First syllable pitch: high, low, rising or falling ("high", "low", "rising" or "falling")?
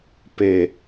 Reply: low